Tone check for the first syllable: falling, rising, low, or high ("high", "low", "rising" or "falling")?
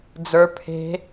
rising